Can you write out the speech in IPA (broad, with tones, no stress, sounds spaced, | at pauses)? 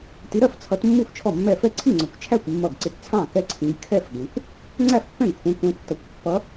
t i˨˦ ɾ ɜ˥˩ f t͡sʰ ʌ˨˦ t mː u˥˩ f t͡ʃʰ ɔ˥˩ mː ɛ˥˩ f ɛ˥˩ ǀʰ i˥˩ ŋ͡ǀ ɒ˨˦ kʷ t͡ʃʰ æ˥˩ kʷ mː ʌ˥˩ ɡ ǀ ɪ˥˩ t t͡sʰ ɑ̃˥˩ k ɛ˥˩ ǀʰ ĩ˨˦ ɡ kʰ ɛ˥˩ f ɡ ɛ̃˨˦ kʷ | ŋ͡ǀ æ˥˩ f pː ɛ̃˥˩ ɡ kʷʰ ɛ̃˨˦ kʷ ɛ̃˨˦ tː ʌ˨˦ kʷ pː ʌ˨˦